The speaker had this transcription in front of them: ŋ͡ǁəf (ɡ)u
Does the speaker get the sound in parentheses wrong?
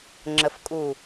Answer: yes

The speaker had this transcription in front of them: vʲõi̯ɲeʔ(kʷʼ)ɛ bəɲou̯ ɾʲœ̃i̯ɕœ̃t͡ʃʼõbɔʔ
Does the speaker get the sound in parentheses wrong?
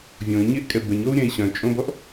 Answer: yes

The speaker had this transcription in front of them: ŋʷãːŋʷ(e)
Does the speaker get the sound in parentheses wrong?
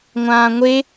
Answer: no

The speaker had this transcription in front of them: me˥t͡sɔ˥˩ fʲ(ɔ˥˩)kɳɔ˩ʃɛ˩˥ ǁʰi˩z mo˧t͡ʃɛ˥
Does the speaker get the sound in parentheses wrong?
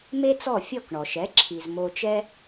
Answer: no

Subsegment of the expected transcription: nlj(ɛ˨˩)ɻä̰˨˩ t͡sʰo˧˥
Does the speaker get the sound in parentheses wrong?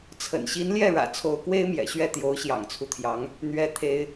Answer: yes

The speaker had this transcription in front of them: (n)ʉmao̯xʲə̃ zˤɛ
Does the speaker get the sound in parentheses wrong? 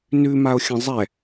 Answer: no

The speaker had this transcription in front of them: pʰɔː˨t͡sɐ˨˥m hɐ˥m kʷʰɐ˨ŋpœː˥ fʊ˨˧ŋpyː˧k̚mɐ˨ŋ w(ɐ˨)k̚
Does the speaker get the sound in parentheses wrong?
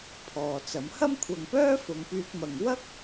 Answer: yes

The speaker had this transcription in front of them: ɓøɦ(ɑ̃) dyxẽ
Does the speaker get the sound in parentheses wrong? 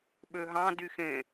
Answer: no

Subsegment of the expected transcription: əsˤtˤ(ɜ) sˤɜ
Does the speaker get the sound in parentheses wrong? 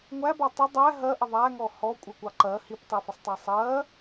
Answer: yes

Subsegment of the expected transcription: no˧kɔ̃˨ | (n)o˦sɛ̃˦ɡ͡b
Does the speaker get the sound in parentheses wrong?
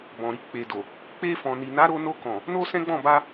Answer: no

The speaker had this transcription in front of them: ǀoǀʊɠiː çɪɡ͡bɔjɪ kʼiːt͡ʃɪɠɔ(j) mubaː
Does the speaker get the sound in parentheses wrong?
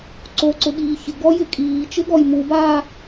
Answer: no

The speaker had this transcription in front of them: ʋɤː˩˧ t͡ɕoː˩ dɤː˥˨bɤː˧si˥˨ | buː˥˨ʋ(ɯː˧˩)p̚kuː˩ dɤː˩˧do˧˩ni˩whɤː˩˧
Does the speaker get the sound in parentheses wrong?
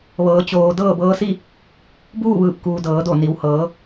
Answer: no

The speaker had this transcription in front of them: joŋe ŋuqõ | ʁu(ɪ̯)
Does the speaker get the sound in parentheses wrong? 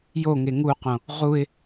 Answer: no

